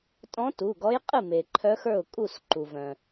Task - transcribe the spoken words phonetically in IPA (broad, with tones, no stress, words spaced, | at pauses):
tʼɔ̃˧˥ tu˩˧˩ɡɔ˧˥jqʼɨ˥˩ me˩ǃʰœ˧˥xə˞˥˩ʊ̯kʼu˥˩s ǃu˩vœ̃˩